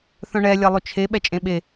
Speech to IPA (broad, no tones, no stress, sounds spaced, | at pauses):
θ œ̃ ɳ ɛ lʲ ɛ lˠ ʏ t͡ʃʰ e ɓ ɛ t͡ʃʼ ẽ ɓ e